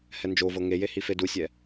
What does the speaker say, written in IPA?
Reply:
h ɛ n d͡ʒ o v ɤ ŋ e j e h i f e d u sʲ ɛ

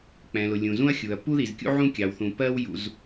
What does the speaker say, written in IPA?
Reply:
k͡p ɛ̃˩ l ʊ˩ lʲ ũ˩ z ũ˥ ɐ̯ xʲ u˩ ɐ̯ p u˥ ð i˩ z kʲ ṵ˥ ʕ ũ˥ kʲ ɑ˩ w θ ũ˩ p ɜ˥ w j ṵ˩ z

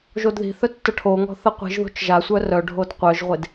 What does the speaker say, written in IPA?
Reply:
ʒ o d ð i̤ θ œ tː ə ʈʰ o ŋ ɔ̤ θ ə qʷ i̤ ʒ ð o̤ t͡ʃ ʒ a sʷ œ r œ ɖʱ o d qʷ œ ʒ ʁʷ e d

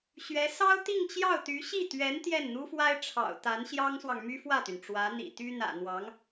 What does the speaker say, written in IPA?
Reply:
ɕ ɥ ɛ˧˥ s ɑ˥ ʊ̯ t̪ i˥˧ ŋ t͡ɕ j ɑ˥˩ ʊ̯ t̪ y˧˥ ɕ i˥˩ t̪ ɥ ɛ˧˥ n t̪ j ɛ˥˩ n n̪ u˥ f w a˥ ɪ̯ ʈ͡ʂʰ ɑ̰˨˩ ʊ̯ t̪ a˧˥ n ɕ j ɑ˥ ŋ s w ɑ˨ ŋ m y˥ f w ä˥˩ t̪ y˩ n ʈ͡ʂ w ä˧˥ n̪ ḭ˨˩ t̪ y˥ n̪ ä̰˨˩ n̪ w ɑ˧˥ ŋ

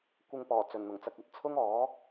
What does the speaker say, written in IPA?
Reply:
kʷ ɪ˧ ŋ p ɔː˨˩ t͡s ɵ˨˩ n n̪ ʊ˨˩ ŋ t͡s ɐ˧ k̚ ɐ˨ t̚ t͡sʰ ʊ˥ ŋ ɔː˨˥

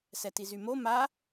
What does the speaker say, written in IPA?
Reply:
s ɛ t i z y m o m a

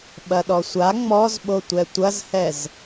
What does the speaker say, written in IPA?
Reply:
ɓ ɐ ɗ ɔ sʷ a ŋ͡m ɔ z ɓ o tʷ ɛ tʷ ɐ z h ɛ z

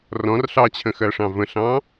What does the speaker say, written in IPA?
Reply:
r ɔ̃ r ɬ ɑ t͡ɕʰ ə̃ x ɜ ʂ ɑ̃ v ə̃ ɬ ɑ̃

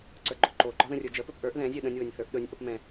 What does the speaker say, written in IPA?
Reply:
ǀ ə˞ ɡ͡ǃ ʊ ǃ o ɡ͡ǃ ɒ ð ə̃ rʲ ə˞ d͡ʒ ə p ɵ p ʔ ə˞ ʔ ð ɛ̃ zʲ ɵ ɗ ə̃ nʲ w ɵ nʲ θ ə˞ ʔ ɗ ɵ nʲ ʔ ʊ p m ɛ̃

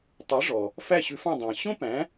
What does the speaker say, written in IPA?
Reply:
tˤ ɛ˩˥ ʐ ɔ˩ | f æ˥˩ ɕ ʉ˧ f ɑ̃˥˩ dˤ æ̃˩ ɕ õ˥ p æ̃˩˥

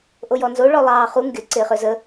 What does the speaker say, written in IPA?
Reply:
ʔ o j ɔ n z o ɭ ɔ lˠ ɑː χ u ŋ ɡ ɪ ǀ ɪː χ ø z ə

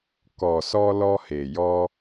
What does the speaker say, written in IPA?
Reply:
k ɔ˨ s ɔ˧ l ɔ˧ h e˨ j ɔ˧

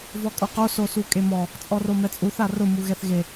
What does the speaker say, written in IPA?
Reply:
v ɔ kʼ o q o s o s u kʼ e m ɔ | t͡sʼ ɔ r o m ɛ t͡sʼ u θ a r ʊ m u ɣ ɛ θ ɣ e

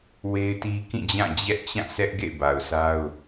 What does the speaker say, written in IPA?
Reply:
w e˦ ɪ̯ t i˦ k ĩ˦˨ d͡ʑ ã˦˨ d͡ʑ ɛ˦ ʔ t͡ɕ ã˦˨ s ɛ˦ ʔ ɡ ḛ˦˨ ɪ̯ b a˨ ʊ̯ s a˦ ʊ̯

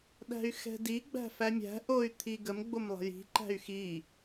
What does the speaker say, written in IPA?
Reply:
ɗ æ̤ y̯ x ɛ̤ d i ɡ͡b æ̤ f æ mʲ æ̤ ʔ o y̯ t̪ʰ i ɡ ə m ɡ͡b o m lˠ ə̤ j i̤ ǃ æ̤ y̯ x i

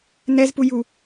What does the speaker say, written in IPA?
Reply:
n ɛ z p u j u

